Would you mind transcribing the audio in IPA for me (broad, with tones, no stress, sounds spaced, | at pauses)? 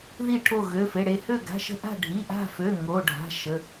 ð i˦˨ ʈʰ o˦˨ ɣ ø˩˧˩ f e˩˧˩ ɽ e˦˨ h ø˦˨ ɡ a̤˩˧˩ ʃ ə̤˦˨ ʔ a̤˦˨ ɖʱ i˩˧˩ ʔ a̤˦˨ f ø˩˧˩ ŋ o˩˧˩ ɖʱ a̤˩˧˩ ʃ ə˩˧˩